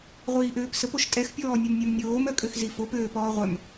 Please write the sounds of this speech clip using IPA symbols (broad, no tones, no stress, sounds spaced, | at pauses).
ʁʷ iː ʔ øː p s ə p o ʃ tʼ ɛ x pʲ ɔː nʲ œ m nʲ œ m nʲ oː m œ kʼ ø x z i f o p øː p ɔː ʁʷ œ m